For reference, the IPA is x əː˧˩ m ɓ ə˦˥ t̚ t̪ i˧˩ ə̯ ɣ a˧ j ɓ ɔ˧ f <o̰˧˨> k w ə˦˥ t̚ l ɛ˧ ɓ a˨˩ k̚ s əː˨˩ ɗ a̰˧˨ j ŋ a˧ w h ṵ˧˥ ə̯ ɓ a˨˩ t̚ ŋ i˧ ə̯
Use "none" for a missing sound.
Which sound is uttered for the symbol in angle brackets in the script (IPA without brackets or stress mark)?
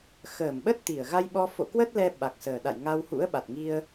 o̰˧˨